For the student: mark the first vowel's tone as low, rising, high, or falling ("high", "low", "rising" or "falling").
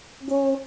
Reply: high